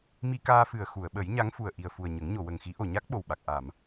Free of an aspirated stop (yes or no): yes